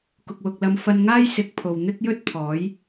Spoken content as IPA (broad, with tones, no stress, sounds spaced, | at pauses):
k ʊ˨ k̚ w ʊ˨ k̚ l ɐ˧ m f ɐ˧ n ŋ aː˥ j s ɪ˨˥ k̚ pʰ o˨ w n̪ ɪ˥ k̚ j ɵ˥ t̚ pʰ ɔː˨˥ j